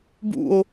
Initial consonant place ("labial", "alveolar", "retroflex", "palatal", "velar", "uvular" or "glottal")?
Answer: labial